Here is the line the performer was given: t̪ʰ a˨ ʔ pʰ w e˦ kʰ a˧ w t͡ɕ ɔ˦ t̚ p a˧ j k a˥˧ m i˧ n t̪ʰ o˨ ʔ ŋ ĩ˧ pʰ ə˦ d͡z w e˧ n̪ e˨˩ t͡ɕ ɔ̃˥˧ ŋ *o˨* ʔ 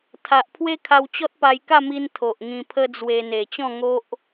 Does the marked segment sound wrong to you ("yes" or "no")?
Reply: yes